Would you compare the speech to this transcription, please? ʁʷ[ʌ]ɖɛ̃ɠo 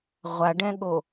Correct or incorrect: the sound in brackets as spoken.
incorrect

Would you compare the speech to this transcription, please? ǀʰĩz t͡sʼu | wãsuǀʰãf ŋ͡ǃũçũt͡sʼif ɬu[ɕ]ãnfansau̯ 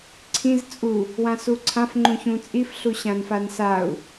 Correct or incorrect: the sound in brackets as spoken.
correct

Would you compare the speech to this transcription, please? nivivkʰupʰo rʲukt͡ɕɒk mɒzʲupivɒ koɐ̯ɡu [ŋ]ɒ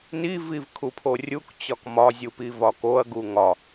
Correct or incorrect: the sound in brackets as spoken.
correct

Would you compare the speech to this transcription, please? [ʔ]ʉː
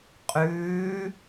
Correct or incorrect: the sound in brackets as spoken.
incorrect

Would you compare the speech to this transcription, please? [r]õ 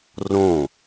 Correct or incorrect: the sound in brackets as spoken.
correct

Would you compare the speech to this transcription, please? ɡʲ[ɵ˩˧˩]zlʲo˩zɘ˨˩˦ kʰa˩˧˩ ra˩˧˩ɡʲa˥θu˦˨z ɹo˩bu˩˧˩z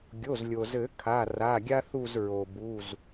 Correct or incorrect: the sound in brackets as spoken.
incorrect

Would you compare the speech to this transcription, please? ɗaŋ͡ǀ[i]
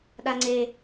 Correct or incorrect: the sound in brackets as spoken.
incorrect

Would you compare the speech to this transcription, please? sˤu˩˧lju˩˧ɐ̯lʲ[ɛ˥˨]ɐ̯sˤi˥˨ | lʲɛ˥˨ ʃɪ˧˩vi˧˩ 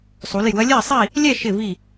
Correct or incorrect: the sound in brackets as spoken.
correct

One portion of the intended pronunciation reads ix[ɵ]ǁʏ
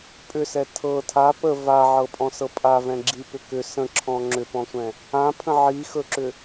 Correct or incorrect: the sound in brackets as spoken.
correct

